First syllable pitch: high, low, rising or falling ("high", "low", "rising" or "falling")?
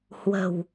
low